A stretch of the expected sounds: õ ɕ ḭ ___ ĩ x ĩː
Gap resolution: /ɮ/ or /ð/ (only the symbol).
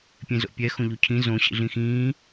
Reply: ɮ